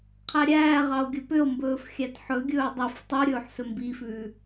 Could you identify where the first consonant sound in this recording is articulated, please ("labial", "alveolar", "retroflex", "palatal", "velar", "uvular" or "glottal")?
uvular